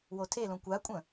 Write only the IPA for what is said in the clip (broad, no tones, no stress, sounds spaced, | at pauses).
w o tʰ e l õ kʷ a kʷʼ ə̃